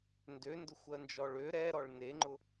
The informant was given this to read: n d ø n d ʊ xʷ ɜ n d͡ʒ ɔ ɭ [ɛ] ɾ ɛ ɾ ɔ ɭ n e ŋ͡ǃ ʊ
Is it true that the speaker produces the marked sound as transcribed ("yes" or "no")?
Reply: no